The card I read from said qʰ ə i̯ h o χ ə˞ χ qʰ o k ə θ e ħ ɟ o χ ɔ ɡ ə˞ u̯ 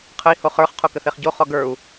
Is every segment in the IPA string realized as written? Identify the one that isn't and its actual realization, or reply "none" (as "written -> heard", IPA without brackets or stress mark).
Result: ħ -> χ